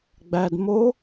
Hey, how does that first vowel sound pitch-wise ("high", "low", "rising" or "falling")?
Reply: low